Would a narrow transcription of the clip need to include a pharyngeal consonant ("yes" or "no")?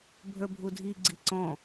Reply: no